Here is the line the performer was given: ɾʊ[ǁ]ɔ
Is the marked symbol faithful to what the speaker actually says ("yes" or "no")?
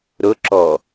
yes